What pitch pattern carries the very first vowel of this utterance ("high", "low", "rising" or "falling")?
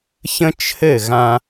high